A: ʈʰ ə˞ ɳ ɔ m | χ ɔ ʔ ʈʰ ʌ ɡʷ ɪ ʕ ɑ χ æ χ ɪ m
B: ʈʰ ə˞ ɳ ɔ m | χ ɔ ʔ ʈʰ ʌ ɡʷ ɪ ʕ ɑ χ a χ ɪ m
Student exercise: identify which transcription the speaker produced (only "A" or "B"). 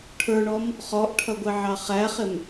A